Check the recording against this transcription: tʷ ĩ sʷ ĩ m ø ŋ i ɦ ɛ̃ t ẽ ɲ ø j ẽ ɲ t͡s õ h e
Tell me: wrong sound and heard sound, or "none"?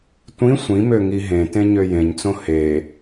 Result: ɛ̃ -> ẽ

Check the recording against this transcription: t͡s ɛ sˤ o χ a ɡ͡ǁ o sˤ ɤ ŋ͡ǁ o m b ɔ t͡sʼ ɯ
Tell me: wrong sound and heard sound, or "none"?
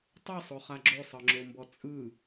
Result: t͡s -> tˤ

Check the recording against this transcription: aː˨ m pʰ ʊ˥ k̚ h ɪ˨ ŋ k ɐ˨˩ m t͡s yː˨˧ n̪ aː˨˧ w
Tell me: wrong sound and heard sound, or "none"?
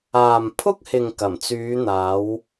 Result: none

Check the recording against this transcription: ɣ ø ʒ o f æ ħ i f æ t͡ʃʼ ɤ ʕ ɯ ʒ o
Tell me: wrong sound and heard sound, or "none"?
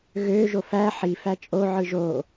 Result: ɤ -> o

